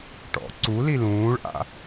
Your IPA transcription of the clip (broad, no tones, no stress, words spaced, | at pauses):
ʈɔ̰ ǀu lilũːɭʔa̰